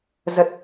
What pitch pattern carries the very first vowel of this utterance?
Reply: low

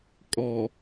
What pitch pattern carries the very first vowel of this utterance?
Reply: low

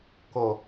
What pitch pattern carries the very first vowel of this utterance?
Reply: low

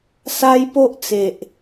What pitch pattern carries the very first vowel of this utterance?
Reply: high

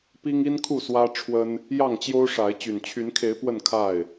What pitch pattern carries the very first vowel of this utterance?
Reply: high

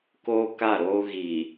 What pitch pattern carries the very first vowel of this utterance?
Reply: high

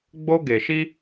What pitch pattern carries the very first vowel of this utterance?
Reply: high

